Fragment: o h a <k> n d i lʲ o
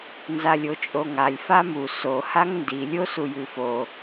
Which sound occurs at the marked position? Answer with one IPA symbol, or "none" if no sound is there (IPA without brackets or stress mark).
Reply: ŋ